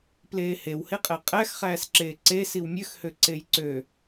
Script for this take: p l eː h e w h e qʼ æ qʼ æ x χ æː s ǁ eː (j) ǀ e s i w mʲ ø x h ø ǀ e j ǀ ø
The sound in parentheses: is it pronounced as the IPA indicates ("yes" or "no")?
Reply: no